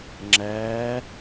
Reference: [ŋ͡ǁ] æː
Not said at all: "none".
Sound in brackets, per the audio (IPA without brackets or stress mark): ŋ͡ǁ